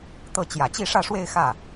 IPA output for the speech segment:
t̪ɤ˥˩ t͡ɕjä˨˩t͡ɕi˥˧ʂä˥˧ʂwe˥˧ɪ̯ xä˥˩

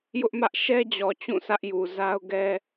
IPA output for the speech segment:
jʊ˦ʔmä˦ʔ ʃɛ˦d͡ʑɔ˨ t͡ɕũ˦˨sä˦ʔju˨ za˦ʊ̯ɡɛ˦

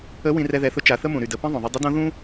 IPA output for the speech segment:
ə˧˥ wĩ˧rɛ˧ðɛ˩˧θʊ˧˥ t͡ʃa˩˧θə˥mũ˩ ɾy˩də˩˧pĩ˥ ðˤõ˩ðˤʊ˧ dˤʏ˧˥dõ˧˥ ðũ˥

